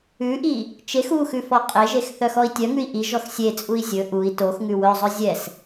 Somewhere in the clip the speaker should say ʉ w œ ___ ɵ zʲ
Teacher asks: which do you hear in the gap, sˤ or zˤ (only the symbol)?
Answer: zˤ